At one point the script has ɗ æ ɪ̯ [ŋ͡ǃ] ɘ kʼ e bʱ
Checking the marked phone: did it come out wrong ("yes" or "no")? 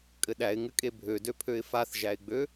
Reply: yes